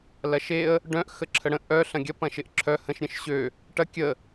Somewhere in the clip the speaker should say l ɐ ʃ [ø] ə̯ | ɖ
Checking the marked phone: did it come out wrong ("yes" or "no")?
yes